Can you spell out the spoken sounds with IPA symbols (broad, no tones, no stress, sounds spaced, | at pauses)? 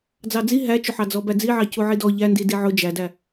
d͡z ɑ d͡z i ɦ æ t͡ʃ ʊ ħ ɑ d͡z ɔ b æ d͡z i ʕ ɑ c u ʕ i d ɔ ʎ æ n d i d i ʕ ʊ d͡ʒ æ d æ